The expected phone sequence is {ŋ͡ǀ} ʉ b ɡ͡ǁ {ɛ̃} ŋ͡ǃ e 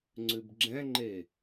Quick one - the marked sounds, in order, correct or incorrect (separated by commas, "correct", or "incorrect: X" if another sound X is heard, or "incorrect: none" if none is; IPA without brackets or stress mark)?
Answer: correct, correct